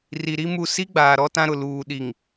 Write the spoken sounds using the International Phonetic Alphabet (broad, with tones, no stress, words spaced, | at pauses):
ri˨ɾi˦ mu˦˨ si˦ ɡ͡baː˨ɾɔ˦tã˦ɾʊ˨ luː˨ɗi˨ŋ